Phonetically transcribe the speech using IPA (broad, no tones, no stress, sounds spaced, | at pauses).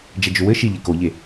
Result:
d͡ʒ ɛ d͡ʒ ʏ w ɘ ʃ i ʎ e k o ʎ e